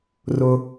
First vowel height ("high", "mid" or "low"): high